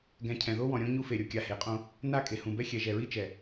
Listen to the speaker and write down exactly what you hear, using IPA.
ɡ ɛ̃˨ cʰ ɛ̃˨ ð o˦ w ɔ̃˨ ɾʲ õ˦ ɲ u˦ f e˨ ɾʲ o˨ kʲ a˨ h e˨ qʼ õ˦ | n a˦˨ kʼ e˨ h ũ˨ b ɛ˦ xʲ ɛ˨ ʒ ɛ˨ ɹ i˦ t͡ʃ ɛ˨

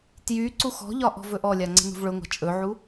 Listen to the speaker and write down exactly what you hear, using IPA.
t j y ǀ u x ɔ̤ ʎ ɒ ʔ ɔ̤ v ɵ ʔ ɔ lʲ a ŋ͡ǀ ə̤ n ṳ v ɭ ɵ ŋʷ a̤ t͡ʃʼ ɵ ʕ u

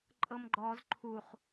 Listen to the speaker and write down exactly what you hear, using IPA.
ǃʼ ɤ m ɡ͡ǃ ɔ z ǃʰ u χ

